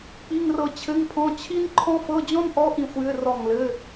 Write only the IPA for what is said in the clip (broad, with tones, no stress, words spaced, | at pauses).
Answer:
k͡pi˧˥˧ŋrɤ˦˨ t͡ɕʰɘ˧˥˧ŋpʰɔ̃˧˥˧ t͡ɕʰi˥nǃʰɔ̃˥ fɤ˧˥˧d͡ʑɔ̃˥nʔɔ˧˥˧ ʔĩ˦˨xʷjɘ˧˥˧ rɔ˦˨ŋlɘ˧˥˧